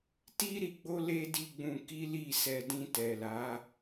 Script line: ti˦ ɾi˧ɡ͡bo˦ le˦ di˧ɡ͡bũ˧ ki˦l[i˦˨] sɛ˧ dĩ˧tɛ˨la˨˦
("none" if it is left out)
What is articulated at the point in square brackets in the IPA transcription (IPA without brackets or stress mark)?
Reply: i˦˨